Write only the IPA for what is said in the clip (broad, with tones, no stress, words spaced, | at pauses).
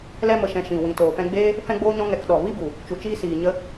lɛ˧mə˨ʃɛ̃˨ ʃĩ˨ wĩ˨toː˨fɛ̃˧ɡ͡beː˦ | fɛ̃˦ɡ͡boː˦ɲɔ̃˦ ŋɛ˧kɗɔ˨ vi˦bu˨ | t͡ʃu˨t͡ʃiː˧ siː˨ɲə˧